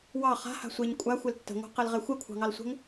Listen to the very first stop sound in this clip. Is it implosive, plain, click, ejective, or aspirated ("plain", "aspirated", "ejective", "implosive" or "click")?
ejective